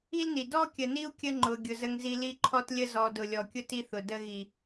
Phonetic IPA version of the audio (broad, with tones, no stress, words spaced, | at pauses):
i˦lni˨ dɔ˦kʲə˨ni˦u̯ kʲə˦ŋ͡ǃʊ˨ ɡʲʊ˨zə˦ŋzi˦ li˦ǃʰɔ˦tlʲə˦ zɔ˨ dʊ˨lʲɔ˨kʲʊ˦ ti˦θʊ˨də˦ ɣi˨